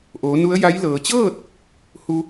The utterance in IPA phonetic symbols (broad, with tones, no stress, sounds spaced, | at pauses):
ʔ oː˩˧ n u˧˥ ə̯ j a˧˥ j l ɤː˩ t͡ɕ ɤː˥˨ t̚ | h u˧